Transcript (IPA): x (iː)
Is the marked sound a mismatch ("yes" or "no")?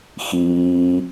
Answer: no